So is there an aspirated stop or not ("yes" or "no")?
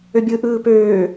no